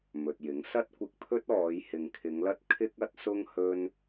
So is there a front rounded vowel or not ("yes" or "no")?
no